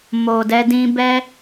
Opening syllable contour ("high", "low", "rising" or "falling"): low